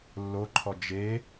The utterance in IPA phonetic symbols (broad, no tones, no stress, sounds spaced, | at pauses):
lː o ǃʰ ɔ d͡ʒ e